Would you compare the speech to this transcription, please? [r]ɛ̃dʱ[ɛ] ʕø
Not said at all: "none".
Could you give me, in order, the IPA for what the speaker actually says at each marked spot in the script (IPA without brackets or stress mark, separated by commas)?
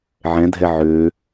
ʕ, ɛ